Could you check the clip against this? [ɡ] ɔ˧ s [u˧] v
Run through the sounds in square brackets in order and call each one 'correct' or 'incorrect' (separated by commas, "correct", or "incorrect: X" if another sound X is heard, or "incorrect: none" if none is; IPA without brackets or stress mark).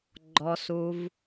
incorrect: ɡ͡ǃ, correct